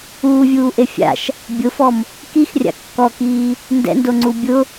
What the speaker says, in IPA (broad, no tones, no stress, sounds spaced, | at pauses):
uː vʲ uː ʔ e fʲ a̰ ʃ | bʲ ʊ f ɔ m | k i x rʲ a̰ kː ɔ k iː | n d ɛ̰ n d o ŋ͡ǀ u bʲ ʊ